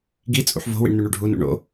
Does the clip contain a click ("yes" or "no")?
no